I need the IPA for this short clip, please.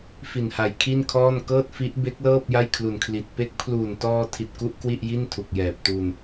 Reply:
f i˨˩ n h a˨˩ j kʰ i˥˩ n kʰ ɔː˥˩ n k ɤː˥˩ t̚ f i˦˥ ʔ b e˦˥ k̚ l ɤː˥˩ p̚ j a˥˩ j kʰ l u˨˩ n kʰ l i˨˩ t̚ p e˦˥ k̚ pʰ l uː˨˩ n t ɔː˧ tʰ i˨˩ t̚ k u˥˩ ʔ k w i˥˩ ʔ j i˥˩ n tʰ u˨˩ k̚ j ɛː˨˩ p̚ t u˧ n

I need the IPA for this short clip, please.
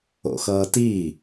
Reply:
o̰ x ʌː t i

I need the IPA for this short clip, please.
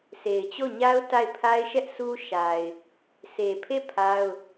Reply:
s e˨ ɪ̯ t͡ɕ o˦˨ ɲ a˦ ʊ̯ t a˦˨ ɪ̯ pʰ a˦ ɪ̯ ʃ ɛ˦ ʔ s u˦ ʃ a˨ ɪ̯ | sʰ e˨ pʰ e˦˨ pʰ a˦ ʊ̯

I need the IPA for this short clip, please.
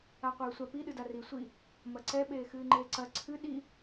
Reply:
a qʷ ɨː sʷ a p i ɗ ɨ d a r i sʷ i | m ɐ ǀ ɛ ɓ eː x ɨː ŋ͡ǃ eː ǀ ɐ ǀʰ ɨ ɗ i

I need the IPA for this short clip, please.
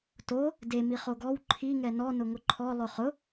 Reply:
t o | d e m i χ o ɡ ɔ w ǃʰ i ŋ ɛ n ɔ n ʊ ŋ ʊ ǃʰ ɔ lˠ ʊ χ ʊ

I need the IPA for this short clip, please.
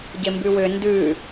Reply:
ɟ ɪ m b ʉ w ʏ n d ʉ

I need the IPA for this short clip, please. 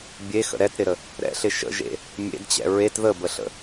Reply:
bʲ e x ə̰ ɾ ɛ t ɾ ɪ ɾ ə | ɾ ɛ̰ ɬ ɪ ʃ ə̰ ʒ ḛ | mʲ ḛ d t͡ɕ ɛ̰ ɹ e t ð ə b ə ɬ ə̰

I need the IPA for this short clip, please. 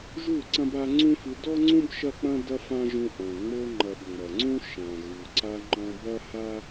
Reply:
ʒ u˦˨ ǀ ɐ̃˦ b a˧ ŋ͡ǀ ũ˦ f ɨ˧ d ɔ˦ ŋ͡ǀ ũ˦ b ʃ ɐ˦ k͡p ɐ̃˦ d ɐ˦ f ã˦ ʒ ũ˧ ʔ ɐ̃˨ ŋ͡m o˧ ŋ͡ǃ ɐ˨ b ŋ͡m ɐ˨ ŋ͡ǀ ũ˦ ʃ ã˨ ɣ u˨ ǀ a˧ ŋ͡ǃ ɔ̃˧ b ɐ˦ h a˦

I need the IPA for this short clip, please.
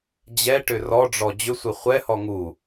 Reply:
d͡ʑ ɛ ʈ ʏ r ɔ ɖ͡ʐ ɔ d͡ʑ ʏ sʷ ɛ χʷ ɛ h ɔ ŋ u

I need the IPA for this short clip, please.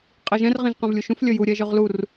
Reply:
qʼ i ʒ ɛ̃ r ʁ ĩ ʒ q ɛ̃ v lʲ u ʃ ũ f lʲ ə j u ɾʲ ɛ ʒ ɵ ʁ l u r

